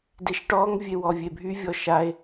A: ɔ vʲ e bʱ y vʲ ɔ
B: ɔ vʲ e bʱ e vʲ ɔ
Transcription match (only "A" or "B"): A